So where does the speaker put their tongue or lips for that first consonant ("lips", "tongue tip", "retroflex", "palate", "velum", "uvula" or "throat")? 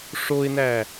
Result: retroflex